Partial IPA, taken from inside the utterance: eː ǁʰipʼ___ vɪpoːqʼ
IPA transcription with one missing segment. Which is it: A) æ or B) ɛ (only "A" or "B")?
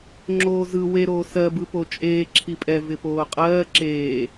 B